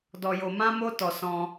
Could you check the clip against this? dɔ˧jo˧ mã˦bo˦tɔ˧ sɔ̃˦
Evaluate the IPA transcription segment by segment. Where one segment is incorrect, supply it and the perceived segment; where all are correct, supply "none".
b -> m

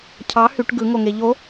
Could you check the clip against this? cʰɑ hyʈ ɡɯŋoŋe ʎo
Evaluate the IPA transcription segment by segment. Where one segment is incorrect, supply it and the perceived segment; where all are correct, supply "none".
none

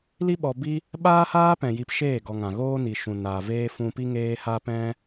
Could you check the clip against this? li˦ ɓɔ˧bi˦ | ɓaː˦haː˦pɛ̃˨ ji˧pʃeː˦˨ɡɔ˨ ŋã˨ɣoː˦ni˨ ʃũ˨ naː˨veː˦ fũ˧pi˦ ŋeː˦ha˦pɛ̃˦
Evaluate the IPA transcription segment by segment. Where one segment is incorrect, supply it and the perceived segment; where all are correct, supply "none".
none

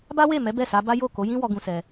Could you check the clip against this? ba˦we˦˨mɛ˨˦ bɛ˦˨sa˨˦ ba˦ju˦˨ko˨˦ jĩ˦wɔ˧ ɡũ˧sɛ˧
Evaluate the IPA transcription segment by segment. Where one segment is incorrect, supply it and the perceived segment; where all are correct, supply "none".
u˦˨ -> o˦˨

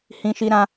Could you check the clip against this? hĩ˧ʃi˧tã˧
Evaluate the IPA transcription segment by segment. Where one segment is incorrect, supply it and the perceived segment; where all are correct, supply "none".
t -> ɾ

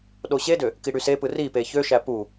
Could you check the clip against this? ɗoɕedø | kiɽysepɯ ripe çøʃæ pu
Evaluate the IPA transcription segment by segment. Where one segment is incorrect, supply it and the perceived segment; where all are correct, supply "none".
none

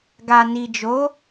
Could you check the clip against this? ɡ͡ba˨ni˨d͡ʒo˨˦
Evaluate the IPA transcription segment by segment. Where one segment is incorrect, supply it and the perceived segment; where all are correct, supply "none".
ɡ͡b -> ɡ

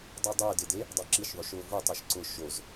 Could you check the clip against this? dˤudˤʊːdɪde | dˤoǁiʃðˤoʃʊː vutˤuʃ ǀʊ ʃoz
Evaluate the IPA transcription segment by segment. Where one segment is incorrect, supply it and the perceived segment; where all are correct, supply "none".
none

